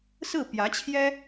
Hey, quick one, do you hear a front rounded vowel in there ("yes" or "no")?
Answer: no